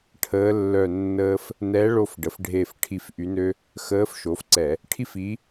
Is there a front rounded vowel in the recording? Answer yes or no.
yes